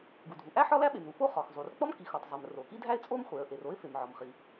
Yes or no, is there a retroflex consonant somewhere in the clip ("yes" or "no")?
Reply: no